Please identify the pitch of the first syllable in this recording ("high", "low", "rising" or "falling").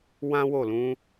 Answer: high